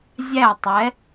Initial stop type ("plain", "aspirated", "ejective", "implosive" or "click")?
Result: plain